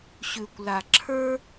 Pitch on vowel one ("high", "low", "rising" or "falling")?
low